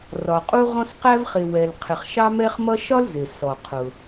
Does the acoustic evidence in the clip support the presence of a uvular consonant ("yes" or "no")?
yes